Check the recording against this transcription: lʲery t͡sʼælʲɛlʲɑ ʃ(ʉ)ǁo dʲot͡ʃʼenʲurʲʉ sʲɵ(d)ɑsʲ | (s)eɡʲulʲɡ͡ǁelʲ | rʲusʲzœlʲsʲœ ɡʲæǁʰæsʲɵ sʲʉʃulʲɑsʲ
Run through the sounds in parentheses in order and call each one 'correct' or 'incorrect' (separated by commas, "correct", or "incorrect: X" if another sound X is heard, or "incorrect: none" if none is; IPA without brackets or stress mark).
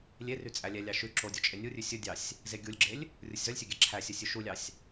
correct, incorrect: dʲ, incorrect: z